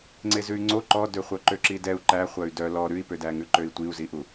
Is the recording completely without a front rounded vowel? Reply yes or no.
no